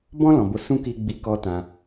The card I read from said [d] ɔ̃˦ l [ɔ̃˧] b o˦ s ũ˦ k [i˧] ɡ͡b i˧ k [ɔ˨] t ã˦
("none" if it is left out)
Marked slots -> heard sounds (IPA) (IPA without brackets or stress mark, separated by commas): b, ɔ̃˧, i˧, ɔ˦